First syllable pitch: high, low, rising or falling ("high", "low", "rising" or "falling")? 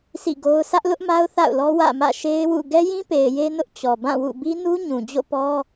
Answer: falling